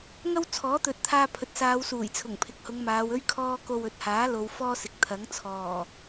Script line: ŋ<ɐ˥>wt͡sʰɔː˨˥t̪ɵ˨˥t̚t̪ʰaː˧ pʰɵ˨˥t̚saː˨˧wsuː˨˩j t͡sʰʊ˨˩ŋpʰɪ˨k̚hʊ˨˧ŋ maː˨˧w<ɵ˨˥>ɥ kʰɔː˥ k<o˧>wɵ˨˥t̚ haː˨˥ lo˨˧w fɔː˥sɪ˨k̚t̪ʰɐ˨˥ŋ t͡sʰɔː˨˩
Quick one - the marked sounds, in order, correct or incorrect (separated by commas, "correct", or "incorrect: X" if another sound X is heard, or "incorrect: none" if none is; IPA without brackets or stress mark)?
correct, incorrect: ɵ˥, correct